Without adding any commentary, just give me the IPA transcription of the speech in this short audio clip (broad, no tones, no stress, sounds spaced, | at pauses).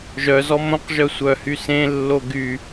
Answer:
ʒ œ z ɔ m õ q ʒ œ sʷ œ h y s ẽ lː o ɡ y